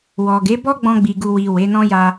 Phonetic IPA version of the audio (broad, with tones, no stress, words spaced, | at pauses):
wɔ˨ɡe˨˦bɔ˦ ɡ͡bɔ̃˧ɡ͡bi˨ɡu˨wi˨ we˨˦nɔ̃˦ja˧